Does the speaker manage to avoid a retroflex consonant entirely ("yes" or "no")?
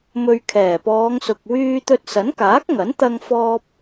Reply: yes